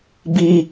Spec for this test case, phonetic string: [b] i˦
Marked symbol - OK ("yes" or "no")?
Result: yes